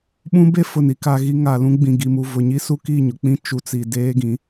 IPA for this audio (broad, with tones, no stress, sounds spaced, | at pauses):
ɓ ũ˦ b e˦ f ʊ˨ n i˨ k a˦ ɣ i˦ ŋ a˨ l ũ˦ ɡ͡b ĩ˨ ɡ i˨ m u˨ v ʊ˨ ɲ i˦ s u˦ k i˦˨ ɲ ʊ˨ k͡p ĩ˦ t͡ʃ u˨ t͡s i˨ d eː˦ ɡ ĩ˨˦